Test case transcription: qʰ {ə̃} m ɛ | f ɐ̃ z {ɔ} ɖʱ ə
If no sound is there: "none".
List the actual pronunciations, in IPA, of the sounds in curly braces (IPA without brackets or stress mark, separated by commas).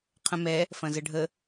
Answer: ə̃, ə